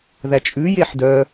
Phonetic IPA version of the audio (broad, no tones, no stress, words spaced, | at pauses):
ðæt͡ʃʼʉ jeħdœ